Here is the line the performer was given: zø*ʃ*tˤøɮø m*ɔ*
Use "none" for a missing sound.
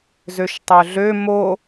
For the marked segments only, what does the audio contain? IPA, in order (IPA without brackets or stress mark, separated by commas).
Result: ʃ, o